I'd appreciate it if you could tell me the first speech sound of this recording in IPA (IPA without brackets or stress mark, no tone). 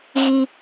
ɣ